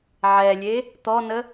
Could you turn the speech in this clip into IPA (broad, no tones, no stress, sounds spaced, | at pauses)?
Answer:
ʕ ɛ lʲ e | t̪ ɔ n ə